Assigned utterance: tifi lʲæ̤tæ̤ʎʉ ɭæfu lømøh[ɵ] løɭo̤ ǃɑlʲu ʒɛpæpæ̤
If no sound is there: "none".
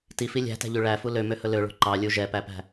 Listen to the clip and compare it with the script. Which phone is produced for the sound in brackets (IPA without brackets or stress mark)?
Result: ɵ